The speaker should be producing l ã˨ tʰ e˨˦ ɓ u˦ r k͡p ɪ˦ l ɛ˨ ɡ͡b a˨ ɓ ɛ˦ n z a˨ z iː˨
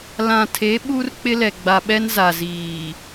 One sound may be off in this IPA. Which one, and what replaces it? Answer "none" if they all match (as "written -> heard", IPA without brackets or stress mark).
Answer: none